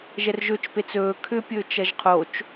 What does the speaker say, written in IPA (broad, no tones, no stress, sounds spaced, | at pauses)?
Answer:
ʒ ɛ r ʒ ɵ t͡ʃ p e t͡s ɵː kʰ ʏ pʲ ɵː t͡ʃ ɐ ʒ qʰ o t͡ʃ